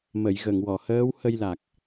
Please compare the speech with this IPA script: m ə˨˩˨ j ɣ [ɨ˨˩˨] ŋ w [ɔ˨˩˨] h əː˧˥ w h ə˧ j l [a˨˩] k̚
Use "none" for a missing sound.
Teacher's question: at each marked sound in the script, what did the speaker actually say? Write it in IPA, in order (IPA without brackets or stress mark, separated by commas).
ə˨˩˨, ɔ˨˩˨, a˨˩